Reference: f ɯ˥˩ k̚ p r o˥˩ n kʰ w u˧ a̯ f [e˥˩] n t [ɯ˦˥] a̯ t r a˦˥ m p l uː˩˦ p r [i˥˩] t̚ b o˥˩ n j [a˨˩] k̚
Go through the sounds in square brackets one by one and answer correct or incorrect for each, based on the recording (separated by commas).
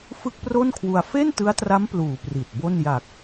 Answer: correct, correct, incorrect, correct